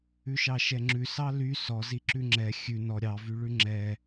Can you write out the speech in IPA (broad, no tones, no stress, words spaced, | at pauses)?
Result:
ʉʃɑʃɛŋ͡ǁʉ sɑly sɔ ziǁʉŋ͡ǁɛ xʲʉ nɔ ɾʲɑvyɭʉ ŋ͡ǁɛ